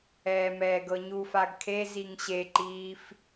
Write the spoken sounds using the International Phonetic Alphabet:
ɛː m ɛː ɡ ɤ ɲ u f a ɡ kʰ e z i ŋ ɕ e ǃ iː f

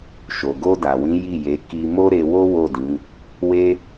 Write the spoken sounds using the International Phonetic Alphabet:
ʃ o˨ ɡ o˧ d a˨ w ĩ˨˦ j i˦˨ j e˨˦ k i˧ m o˦ ɾ e˧ w o˦ w o˦˨ d ĩ˨˦ | w e˦

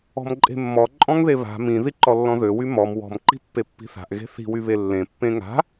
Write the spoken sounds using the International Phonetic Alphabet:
ɔ̤ m ǃʼ e̤ mː ɔ ǃʼ ɔ̃ ŋ ð e β a̤ m ĩ ð i ǃ ɔ lː ɔ̃ ð ø w y m ɔ m w ɔ̤ m ǃ i̤ pː e pː i̤ θ a̤ ʔ ɣ e̤ θ i̤ w y β e lː ẽ pː ẽ ŋ a̤

